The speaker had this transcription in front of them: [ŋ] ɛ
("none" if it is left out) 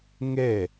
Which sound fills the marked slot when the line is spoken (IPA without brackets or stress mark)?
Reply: ŋ